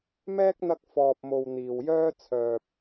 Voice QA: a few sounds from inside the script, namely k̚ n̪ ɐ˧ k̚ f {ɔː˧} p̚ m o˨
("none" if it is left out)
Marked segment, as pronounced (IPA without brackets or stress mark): ɔː˨